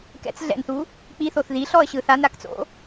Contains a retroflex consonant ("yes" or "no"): no